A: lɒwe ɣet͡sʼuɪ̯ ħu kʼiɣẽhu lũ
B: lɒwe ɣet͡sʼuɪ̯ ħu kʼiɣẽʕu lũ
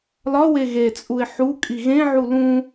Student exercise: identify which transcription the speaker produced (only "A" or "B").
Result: B